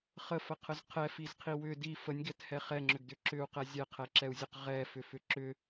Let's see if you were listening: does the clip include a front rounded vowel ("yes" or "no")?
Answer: yes